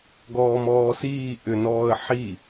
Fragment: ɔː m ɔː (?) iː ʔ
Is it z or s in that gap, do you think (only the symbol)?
s